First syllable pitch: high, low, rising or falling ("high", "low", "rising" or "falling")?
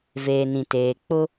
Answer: low